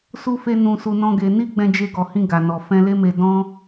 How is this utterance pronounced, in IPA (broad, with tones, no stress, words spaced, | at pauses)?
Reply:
su˦fe˦ nũ˧ su˧nɔ̃˦ɡe˧ ni˦ɡ͡bɛ̃˧d͡ʒe˧ ɡɔ˨hĩ˧ ɡa˨nɔ˨ fɛ̃˧le˦me˧ dɔ̃˦